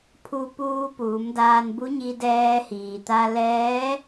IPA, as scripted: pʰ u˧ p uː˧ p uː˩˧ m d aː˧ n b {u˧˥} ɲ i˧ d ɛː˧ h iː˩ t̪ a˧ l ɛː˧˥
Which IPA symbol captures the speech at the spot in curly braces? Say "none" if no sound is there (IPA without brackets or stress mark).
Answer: u˧˥